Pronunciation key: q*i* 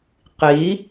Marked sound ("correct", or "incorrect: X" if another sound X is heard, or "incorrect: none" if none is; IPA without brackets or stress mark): correct